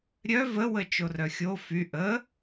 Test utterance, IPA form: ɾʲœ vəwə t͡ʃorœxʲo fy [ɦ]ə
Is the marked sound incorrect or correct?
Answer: incorrect